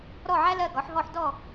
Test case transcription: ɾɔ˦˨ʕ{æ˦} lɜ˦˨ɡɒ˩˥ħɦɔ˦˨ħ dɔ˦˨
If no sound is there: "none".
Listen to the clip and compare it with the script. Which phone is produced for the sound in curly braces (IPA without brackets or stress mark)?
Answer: æ˦